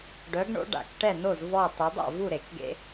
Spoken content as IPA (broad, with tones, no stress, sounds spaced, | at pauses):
ɖ œ˨˥ ɡ ɳ o̰˨˥ ɖ a̰˨˩˦ k ʈ ɛ˥˨ n o˥˨ z v ɔ˥˨ tˤ ø˨˥ dˤ a̰˥˨ v u˥˨ ɾ e˨˩˦ k ɡ ḛ˦